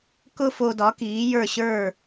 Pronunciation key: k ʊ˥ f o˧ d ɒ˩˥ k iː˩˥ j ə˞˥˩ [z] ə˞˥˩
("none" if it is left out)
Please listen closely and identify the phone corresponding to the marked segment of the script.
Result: ɕ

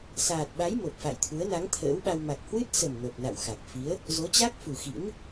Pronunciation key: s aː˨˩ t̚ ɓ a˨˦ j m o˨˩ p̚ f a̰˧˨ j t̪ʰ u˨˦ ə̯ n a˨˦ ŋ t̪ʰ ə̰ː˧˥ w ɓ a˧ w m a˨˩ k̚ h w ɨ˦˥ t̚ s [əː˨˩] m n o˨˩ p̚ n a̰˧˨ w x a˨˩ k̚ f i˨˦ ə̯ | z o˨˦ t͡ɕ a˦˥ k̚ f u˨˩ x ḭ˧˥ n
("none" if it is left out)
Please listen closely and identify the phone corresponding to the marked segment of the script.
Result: ə˨˩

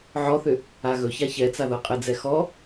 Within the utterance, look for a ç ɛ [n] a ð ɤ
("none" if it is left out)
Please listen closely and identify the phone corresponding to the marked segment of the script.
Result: t͡s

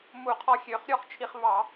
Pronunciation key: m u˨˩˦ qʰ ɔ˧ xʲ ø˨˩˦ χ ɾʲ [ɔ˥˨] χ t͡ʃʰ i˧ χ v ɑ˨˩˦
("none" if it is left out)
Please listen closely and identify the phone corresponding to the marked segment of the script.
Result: ɔ˥˨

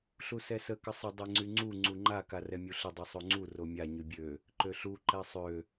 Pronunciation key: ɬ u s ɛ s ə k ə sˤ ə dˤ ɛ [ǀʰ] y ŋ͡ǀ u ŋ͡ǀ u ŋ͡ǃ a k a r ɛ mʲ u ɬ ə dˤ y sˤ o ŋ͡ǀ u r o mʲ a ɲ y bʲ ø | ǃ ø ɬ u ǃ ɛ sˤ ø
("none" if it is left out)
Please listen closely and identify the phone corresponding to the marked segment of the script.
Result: ŋ͡ǀ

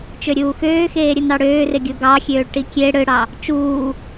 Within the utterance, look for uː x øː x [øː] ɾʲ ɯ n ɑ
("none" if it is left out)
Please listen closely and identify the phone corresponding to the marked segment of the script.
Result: eː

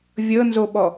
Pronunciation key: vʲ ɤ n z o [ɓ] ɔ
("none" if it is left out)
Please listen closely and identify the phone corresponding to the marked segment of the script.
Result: ɓ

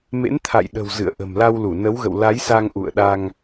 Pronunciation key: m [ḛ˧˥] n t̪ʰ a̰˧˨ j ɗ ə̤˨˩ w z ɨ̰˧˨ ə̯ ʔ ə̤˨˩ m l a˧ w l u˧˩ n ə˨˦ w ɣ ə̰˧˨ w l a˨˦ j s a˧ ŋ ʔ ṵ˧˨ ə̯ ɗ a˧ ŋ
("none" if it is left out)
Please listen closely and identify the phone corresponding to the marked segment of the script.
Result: ḛ˧˥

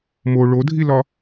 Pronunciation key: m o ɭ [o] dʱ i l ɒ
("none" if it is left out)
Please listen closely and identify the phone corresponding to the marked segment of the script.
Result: o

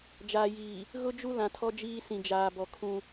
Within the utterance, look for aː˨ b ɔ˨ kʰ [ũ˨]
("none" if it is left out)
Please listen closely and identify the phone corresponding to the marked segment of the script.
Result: ũ˦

